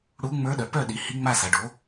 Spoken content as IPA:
ɽ u˧˥ ŋ͡m ə˞˧˥ ɗ œ˩˧ p œ˥˨ ɗ i˩˥ h i˧˥ ŋ͡m a˥˨ s a˩˧ ɖ o˩˥

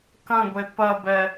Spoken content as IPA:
k ɐ̃ ɡʷ e p ɐ b ɛ

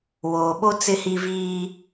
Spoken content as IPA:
w oː˨ ɓ o˦ t͡s ɪ˦ h i˦ v iː˦

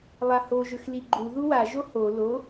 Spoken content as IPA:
lˠ a h o ʒ ɵ x l i ɡ͡ǃ u ð u w a ʒ o h o l o

